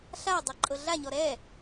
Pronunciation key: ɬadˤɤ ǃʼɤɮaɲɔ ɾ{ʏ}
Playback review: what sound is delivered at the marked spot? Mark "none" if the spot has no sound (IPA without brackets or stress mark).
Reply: ɛ